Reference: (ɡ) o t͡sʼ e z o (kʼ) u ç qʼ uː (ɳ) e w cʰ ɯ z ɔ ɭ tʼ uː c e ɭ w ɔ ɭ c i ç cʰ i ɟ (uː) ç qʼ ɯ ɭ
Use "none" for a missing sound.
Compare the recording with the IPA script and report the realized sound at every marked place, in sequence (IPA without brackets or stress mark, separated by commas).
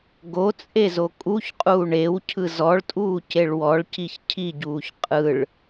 ɡ, kʼ, ɳ, uː